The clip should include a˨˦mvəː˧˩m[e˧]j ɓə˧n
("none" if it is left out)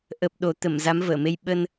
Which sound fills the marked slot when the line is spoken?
e˧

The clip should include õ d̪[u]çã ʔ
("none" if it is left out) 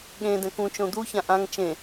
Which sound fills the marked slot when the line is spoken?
u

